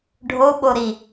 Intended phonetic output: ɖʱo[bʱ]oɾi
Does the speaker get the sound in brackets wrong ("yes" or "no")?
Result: yes